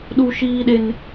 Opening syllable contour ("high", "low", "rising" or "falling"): high